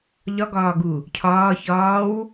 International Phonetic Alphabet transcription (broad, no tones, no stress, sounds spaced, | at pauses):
ʎ ɒ ɡ ɒː ɡ u | cʰ ɒː ç ɒː w